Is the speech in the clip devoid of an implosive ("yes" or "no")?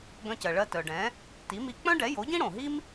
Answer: yes